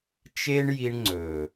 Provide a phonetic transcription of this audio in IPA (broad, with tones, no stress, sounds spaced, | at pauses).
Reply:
t͡ʃ e˦ ɳ j i˧ ɳ ŋ͡ǀ ɵ˨